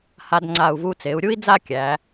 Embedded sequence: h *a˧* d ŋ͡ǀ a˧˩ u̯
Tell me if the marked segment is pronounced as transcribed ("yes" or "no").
yes